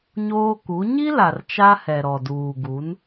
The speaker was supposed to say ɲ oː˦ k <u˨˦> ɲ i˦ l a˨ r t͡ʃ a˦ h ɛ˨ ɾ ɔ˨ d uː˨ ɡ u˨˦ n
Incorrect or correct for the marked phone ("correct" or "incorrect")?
correct